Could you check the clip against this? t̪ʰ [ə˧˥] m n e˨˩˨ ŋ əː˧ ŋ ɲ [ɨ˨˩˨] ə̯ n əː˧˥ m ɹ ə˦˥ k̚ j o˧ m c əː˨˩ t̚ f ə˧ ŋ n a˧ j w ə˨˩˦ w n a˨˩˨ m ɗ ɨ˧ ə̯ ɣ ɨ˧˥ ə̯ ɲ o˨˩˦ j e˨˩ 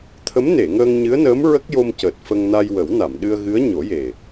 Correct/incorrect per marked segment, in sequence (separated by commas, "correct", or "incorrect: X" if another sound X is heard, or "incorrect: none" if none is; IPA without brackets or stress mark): correct, incorrect: ɨ˧˥